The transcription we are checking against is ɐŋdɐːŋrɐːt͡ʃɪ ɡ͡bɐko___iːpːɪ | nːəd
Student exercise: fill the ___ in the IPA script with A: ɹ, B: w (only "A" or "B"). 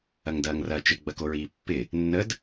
A